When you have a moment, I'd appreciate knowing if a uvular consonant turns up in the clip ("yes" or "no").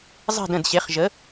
yes